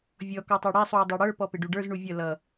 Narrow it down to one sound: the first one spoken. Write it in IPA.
vʲ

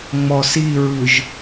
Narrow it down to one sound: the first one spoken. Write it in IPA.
ŋ͡m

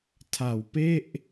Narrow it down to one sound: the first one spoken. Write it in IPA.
tʰ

